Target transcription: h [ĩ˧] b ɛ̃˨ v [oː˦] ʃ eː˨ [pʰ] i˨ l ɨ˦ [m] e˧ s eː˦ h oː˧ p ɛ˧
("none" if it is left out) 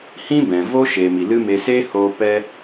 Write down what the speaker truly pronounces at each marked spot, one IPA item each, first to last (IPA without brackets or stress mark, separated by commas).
ĩ˦, o˦, m, m